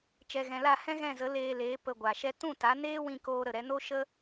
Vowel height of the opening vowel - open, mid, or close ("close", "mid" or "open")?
mid